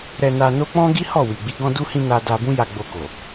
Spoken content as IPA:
ɾ ɛ˧ n a˧ n o˦ k͡p ɔ̃˦ ɡ i˦ h ɔ˦˨ w i˨ ɡ͡b i˧ ɡ ɔ̃˧ d u˧ h ĩ˧ n a˧ d a˧ b ũ˦ j a˧ ɡ͡b o˧ k o˨

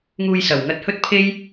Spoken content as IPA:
ŋ uː˧ j s ɐ˨˩ w ŋ ɐ˧ t̚ h ɵ˥ t̚ pʰ e˥ j

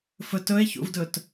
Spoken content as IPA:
f ɵ t ɵ e̯ ç ṵ v d ɵ t

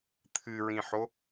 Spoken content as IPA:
t̪ʰ ɨ ɹ ĩ ħ o

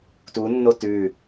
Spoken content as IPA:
t u nː o t ʉ

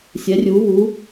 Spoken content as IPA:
sʲ ɛ˧˥ rʲ u˧˥ β u˧˥

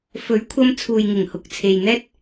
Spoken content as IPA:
f ɵ˨˥ ɥ kʷʰ ɐ˧ m t͡sʰ uː˨ j ŋ ɪ˨˩ ŋ h ʊ˨ k̚ t͡sʰ e˨ j n̪ ɛː˥ t̚

